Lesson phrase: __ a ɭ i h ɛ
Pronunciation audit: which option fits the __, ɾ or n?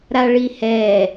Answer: ɾ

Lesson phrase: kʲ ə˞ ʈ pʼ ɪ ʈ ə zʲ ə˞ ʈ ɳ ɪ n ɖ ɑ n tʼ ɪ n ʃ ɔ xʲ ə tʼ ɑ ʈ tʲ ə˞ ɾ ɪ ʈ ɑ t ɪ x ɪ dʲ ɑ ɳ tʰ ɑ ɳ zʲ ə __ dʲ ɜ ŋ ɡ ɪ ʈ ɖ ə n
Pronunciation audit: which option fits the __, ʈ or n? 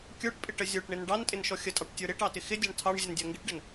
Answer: n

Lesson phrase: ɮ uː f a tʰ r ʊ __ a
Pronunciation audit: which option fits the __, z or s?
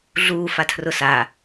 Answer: s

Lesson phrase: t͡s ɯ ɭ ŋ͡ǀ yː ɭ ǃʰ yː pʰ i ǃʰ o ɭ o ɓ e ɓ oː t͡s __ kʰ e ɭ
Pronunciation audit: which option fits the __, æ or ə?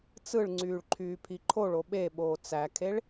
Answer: æ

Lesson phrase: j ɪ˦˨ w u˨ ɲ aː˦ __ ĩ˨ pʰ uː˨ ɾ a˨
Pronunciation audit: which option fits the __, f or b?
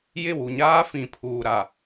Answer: f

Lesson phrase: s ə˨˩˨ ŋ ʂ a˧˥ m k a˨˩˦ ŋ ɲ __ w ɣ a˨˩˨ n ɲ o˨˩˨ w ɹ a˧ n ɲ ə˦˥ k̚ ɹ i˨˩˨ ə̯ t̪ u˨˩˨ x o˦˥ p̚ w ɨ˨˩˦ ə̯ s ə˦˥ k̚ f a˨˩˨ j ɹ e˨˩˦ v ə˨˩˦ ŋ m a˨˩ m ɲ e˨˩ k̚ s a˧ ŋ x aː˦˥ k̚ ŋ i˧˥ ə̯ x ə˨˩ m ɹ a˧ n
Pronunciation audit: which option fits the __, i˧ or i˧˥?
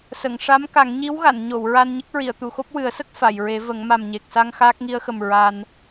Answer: i˧˥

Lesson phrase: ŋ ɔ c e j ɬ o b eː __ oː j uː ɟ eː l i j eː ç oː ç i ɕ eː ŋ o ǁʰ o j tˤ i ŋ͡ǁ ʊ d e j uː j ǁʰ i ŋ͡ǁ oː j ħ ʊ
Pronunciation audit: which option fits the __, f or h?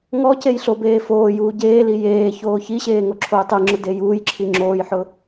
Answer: f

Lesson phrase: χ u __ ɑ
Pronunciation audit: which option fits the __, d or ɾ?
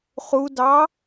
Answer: d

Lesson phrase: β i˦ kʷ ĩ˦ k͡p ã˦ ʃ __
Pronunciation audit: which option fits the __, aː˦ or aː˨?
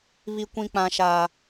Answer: aː˦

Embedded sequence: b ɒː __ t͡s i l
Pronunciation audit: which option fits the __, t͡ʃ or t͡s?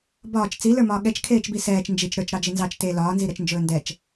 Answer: t͡ʃ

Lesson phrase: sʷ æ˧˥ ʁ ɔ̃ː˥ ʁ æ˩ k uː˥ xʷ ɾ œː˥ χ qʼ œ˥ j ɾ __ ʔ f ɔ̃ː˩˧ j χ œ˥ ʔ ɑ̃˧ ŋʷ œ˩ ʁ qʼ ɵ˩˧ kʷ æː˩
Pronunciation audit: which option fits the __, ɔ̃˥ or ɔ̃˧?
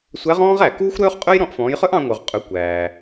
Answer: ɔ̃˧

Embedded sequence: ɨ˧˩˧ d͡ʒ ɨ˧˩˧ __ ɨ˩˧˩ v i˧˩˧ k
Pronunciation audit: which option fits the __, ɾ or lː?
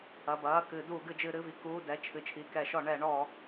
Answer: ɾ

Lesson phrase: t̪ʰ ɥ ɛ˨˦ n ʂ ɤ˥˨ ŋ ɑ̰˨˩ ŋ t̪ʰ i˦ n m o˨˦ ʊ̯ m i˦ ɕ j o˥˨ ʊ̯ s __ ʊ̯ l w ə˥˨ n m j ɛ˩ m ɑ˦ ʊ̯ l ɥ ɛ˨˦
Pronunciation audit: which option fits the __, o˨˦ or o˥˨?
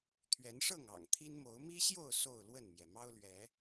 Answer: o˥˨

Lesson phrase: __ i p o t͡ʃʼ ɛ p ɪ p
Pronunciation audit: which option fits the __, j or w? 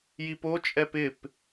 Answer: j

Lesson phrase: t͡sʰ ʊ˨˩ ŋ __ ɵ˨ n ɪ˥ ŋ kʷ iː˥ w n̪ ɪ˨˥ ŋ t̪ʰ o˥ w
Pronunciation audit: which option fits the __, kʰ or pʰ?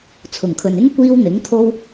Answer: kʰ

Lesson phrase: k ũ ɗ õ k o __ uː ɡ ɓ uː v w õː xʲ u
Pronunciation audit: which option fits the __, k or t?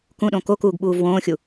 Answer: k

